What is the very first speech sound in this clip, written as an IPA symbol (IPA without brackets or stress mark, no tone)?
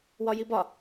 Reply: w